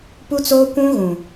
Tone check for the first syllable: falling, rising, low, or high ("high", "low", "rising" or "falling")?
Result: high